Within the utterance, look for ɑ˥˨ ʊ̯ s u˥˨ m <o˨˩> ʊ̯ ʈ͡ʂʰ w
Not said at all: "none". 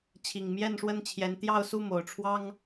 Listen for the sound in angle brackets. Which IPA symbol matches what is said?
o˨˩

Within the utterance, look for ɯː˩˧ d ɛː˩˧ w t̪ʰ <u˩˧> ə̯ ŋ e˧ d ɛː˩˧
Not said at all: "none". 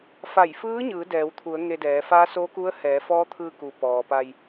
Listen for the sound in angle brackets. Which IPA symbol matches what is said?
u˩˧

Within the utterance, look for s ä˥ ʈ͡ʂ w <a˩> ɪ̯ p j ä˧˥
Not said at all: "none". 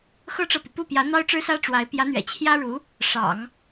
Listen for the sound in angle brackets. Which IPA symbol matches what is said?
a˧˥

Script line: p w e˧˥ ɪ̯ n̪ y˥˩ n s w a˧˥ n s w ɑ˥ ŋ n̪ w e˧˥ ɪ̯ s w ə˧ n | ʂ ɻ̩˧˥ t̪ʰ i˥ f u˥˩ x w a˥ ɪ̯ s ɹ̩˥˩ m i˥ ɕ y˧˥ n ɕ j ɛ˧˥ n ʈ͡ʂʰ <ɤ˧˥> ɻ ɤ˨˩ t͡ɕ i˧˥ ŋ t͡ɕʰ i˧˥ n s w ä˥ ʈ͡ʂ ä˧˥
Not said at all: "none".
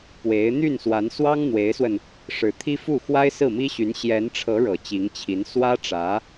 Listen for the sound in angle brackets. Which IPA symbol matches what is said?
ɤ˧˥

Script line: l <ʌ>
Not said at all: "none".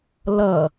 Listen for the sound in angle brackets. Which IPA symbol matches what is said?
ʌ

